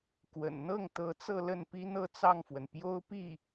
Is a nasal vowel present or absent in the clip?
absent